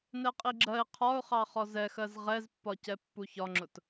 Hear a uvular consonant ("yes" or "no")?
yes